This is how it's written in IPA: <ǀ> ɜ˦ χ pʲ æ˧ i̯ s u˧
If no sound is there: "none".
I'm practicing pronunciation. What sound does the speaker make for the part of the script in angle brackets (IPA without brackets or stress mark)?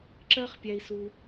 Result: ǁ